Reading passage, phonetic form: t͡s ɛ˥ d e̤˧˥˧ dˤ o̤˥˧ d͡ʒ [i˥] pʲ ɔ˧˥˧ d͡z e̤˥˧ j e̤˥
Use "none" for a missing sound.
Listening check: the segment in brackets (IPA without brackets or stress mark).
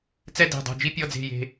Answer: i˥